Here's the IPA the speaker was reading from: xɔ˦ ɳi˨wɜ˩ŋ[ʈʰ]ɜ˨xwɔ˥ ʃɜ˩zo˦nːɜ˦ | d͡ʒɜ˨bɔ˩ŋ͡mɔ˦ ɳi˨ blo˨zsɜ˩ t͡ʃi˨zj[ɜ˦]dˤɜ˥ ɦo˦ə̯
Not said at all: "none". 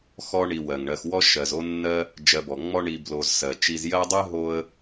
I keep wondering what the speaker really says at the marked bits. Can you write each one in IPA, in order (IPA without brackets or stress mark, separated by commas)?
ɳ, ɜ˦